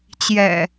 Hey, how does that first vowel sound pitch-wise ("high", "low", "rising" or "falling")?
low